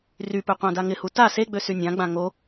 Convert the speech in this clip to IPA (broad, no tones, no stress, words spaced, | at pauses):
rypø qʷãdaŋɪhu ta seɡ͡bø synʲãɡ͡bã ŋo